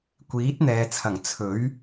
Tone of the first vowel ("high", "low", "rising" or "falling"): rising